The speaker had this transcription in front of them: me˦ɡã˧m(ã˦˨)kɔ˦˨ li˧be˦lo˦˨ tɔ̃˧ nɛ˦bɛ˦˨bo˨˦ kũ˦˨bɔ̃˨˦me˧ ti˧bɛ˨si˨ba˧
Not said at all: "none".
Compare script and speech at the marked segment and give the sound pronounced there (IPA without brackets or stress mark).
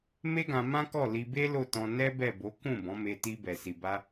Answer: ã˦